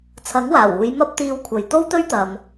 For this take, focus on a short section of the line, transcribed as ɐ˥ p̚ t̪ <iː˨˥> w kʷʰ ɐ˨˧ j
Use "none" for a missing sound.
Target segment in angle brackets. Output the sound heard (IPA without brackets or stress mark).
iː˧